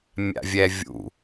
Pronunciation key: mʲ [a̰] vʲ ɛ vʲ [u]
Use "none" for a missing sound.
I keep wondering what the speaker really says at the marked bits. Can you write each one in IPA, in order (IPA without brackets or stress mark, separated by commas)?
a̰, ṵ